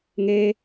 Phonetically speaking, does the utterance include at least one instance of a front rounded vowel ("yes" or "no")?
no